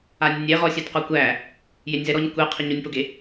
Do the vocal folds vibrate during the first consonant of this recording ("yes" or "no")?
yes